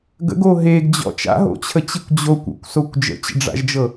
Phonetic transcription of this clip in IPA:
ɡ ə̰ ɡ o ɦ e ɡ d͡ʑ ɔ̰ t͡ʃ a̰ ɦ o̰ t͡ɕʰ ə t͡ɕ i kʷ d͡ʑ o kʷ o̰ kʷ s o kʷ d͡ʒ ə̰ t͡ɕ ə̰ ɖ͡ʐ a̰ ʒ d͡ʒ ɤ

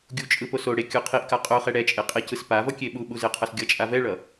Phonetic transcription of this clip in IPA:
ɡʲ u t͡ʃʼ ɯ p o s o ɽ e kʲ u qʰ i ʔ k a qʼ o χ ɛ ɽ ɛ t͡ʃʼ e qʼ e c ɯ s p a v ʌ kʲ e ɓ u ɓ u z e qʰ ʌ s ɡʲ ʌ t͡ʃʼ a v ɛ ɭ ʌ

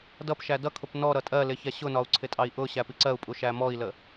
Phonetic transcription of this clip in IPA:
d ʌ p ʃ æ d ʌ kʰ ʊ p n ɔ ɾ ʌ tʼ ɜ l ɪ ç ɛ ɕ ʊ n ɒ u̯ ǀʰ ɪ tʼ ɑ i̯ ʔ ʊ ɕ æ p i ǀ ɜ u̯ pʼ u ʃ æ m ɔ i̯ l ə

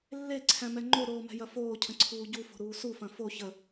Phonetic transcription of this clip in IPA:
lː e ǀʰ æ̃ m ɛ ŋ͡ǃ o ɾ oː m ɛ̤ j ɐ f oː cʰ ə̃ ǀʰ uː ɟ u f o̤ ɾ uː s u f ɐ̃ f o ç ə

